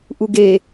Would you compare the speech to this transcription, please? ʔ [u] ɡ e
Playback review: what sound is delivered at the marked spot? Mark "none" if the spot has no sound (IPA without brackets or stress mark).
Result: u